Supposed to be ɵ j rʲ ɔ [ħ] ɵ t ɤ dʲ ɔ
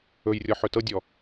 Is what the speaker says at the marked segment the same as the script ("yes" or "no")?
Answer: yes